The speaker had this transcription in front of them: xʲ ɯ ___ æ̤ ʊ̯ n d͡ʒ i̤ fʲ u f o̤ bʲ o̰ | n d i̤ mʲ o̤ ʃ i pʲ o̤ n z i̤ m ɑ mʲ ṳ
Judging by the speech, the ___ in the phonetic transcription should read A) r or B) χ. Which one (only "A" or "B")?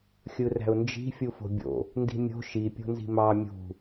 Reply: A